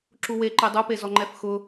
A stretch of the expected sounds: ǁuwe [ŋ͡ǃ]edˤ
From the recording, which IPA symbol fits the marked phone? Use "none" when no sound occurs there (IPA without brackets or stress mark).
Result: ǃ